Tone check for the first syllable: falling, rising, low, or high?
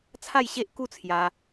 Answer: falling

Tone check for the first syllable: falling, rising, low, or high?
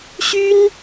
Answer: high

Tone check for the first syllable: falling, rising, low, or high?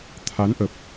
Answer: rising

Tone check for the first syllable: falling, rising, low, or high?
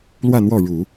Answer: falling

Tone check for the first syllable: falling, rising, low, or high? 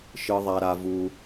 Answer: high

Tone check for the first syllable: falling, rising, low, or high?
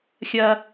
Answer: high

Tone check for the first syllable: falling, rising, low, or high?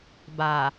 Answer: low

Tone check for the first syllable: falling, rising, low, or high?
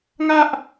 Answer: high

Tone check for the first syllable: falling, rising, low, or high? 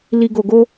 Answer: low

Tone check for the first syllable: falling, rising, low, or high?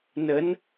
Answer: rising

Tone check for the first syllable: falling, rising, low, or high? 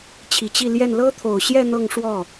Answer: low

